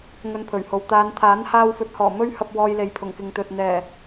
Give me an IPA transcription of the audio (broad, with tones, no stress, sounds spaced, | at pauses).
ŋ ɵ˧ n pʰ ɵ˨˩ ɥ h o˨ w t̪ aː˨˧ n t̪ʰ aː˨˥ n h aː˧ w f ɵ˨˥ t̚ h ɔː˨˩ m ɵ˥ ɥ h ɐ˧ p̚ w ɔː˧ j l e˨ j pʰ ʊ˨˩ ŋ k ɪ˨ ŋ t̪ ɵ˨ t̚ n̪ ɛː˨˩